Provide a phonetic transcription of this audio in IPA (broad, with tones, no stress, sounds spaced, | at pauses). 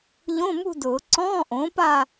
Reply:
ʎ õ˧˥˧ m ṳ˥˧ d ʊː˨˩˦ ǀ ɔ̃ː˧˥˧ ʔ õː˩˥ p a˥˧